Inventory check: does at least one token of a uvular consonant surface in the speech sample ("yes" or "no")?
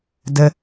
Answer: no